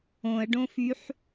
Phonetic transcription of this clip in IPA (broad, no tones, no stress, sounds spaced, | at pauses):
õ ə̯ ɖ õ f y ħ